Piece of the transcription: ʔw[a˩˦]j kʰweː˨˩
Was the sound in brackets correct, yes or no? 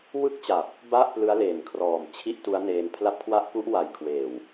no